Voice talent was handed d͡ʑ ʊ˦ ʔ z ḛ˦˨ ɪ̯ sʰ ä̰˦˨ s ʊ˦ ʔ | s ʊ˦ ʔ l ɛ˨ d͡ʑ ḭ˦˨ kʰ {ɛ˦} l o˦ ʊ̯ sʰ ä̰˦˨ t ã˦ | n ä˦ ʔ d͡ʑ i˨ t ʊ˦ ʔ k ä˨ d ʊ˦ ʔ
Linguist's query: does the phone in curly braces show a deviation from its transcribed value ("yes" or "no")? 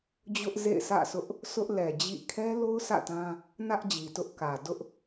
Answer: no